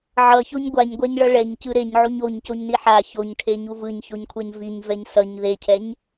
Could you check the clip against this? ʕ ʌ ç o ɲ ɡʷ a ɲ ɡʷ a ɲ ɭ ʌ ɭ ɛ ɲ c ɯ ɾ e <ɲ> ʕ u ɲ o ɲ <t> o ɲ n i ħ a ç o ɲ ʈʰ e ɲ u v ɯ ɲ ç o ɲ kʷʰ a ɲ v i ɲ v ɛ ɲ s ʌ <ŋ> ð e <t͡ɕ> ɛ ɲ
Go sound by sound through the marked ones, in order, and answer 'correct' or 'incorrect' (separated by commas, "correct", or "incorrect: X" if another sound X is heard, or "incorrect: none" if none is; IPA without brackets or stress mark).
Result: correct, incorrect: c, incorrect: ɲ, incorrect: cʰ